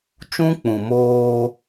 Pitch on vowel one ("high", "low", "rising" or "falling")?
high